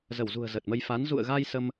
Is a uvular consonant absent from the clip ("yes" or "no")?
yes